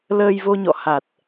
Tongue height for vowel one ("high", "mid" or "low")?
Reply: mid